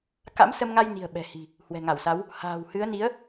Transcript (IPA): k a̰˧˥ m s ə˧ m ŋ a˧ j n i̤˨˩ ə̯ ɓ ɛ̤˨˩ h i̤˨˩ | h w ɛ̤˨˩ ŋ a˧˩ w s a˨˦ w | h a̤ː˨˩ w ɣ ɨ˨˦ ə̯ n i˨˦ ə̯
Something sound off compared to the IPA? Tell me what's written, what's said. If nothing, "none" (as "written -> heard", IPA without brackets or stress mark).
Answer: ɣ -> h